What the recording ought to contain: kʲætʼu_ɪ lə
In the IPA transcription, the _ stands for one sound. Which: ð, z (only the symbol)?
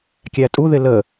ð